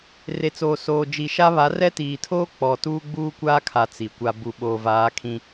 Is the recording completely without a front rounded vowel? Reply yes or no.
yes